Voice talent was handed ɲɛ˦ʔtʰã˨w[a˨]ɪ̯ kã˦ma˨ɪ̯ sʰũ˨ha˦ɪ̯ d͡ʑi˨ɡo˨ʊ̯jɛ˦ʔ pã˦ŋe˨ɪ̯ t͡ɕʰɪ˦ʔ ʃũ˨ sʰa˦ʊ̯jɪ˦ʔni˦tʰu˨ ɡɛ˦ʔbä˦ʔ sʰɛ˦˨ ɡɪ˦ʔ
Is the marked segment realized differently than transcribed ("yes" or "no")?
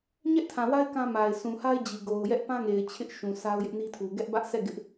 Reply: yes